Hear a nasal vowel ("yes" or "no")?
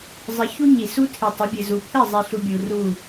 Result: no